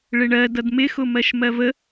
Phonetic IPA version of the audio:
ɭɪɳɜ dʌdmɪxʊ mɜʃmɜvə

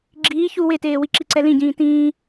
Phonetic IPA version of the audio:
ɡ͡ǁiː çu weteːwi ǁiǀɛlĩɟĩː tĩː

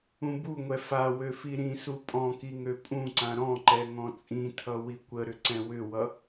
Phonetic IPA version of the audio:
ũbuŋʷɛ fawø fiɾĩsu pʼɔ̃ki ŋøpʼũǀã ɾɔ̃ǃɛ ŋɔ̃t͡sʼĩtʰʌ wikʷəɾʏ ǀɛ̃wʏwʌ

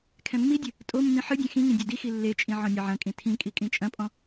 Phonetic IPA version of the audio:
kʰɛ̃mːidʲɨ | tʼomːĩ ħɨdʲɛ̃ xĩŋĩ dʲadixi lːet͡ʃʼĩ ʕɔ̃nʲɐʕɐ̃kʼĩ tʰĩ kʼikʼĩt͡ʃʼɐ̃pʼɔ̃

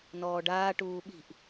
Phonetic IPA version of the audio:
nɔːɖaː ʈuːɓi̤ʔ

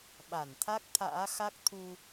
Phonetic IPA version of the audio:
ɓa˧˩nt̪ʰa˦˥k̚t̪ʰa̰ː˧˥xa˦˥k̚ t̪ʰu˧

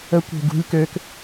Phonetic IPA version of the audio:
ə kʷe̤ɡṳlʲ køk

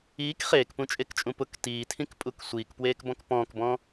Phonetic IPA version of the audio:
iːk χeːkpũt͡ʃʼekt͡ʃʼũ pʊk tiːtʰĩkpʼuk sʷiːkpweːkbɔ̃k pɔ̃ːkbɔ̃

